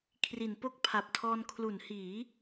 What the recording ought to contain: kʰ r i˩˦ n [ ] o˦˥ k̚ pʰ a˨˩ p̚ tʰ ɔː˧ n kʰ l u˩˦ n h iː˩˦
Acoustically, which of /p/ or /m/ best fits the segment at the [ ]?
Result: p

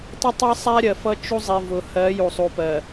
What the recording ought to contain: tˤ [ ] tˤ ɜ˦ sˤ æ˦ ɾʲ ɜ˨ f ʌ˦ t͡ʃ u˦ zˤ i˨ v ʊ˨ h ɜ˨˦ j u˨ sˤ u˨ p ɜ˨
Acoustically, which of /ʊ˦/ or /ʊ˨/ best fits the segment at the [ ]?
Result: ʊ˦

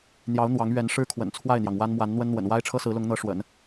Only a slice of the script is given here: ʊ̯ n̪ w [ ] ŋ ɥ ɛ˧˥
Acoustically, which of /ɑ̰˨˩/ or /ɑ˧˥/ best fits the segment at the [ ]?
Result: ɑ˧˥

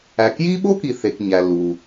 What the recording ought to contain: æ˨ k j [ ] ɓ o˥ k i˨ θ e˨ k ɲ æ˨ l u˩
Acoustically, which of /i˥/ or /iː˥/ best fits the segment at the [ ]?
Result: iː˥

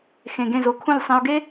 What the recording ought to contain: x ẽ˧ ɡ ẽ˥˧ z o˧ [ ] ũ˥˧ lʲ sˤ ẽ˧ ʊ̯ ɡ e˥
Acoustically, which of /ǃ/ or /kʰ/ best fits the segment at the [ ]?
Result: kʰ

